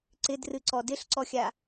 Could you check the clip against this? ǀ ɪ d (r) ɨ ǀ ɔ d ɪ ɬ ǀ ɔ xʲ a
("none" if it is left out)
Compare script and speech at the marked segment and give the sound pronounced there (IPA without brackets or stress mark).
r